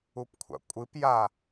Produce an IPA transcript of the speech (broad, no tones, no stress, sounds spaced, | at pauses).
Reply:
u p kʷʰ a̰ kʷʼ ɨ p j a